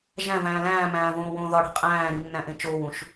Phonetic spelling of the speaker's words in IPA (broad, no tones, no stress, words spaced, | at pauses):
ʒæ̃væ̃ː læ̃ːmæ̃ːvõːwõː ðɒɽi̤ qʼæ̃ːɾinːæ̃ʔẽ t͡ʃoːwũʃ